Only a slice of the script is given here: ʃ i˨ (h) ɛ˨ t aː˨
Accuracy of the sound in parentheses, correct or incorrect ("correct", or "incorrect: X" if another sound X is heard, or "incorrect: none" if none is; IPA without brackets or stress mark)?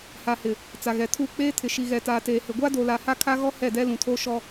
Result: incorrect: ɣ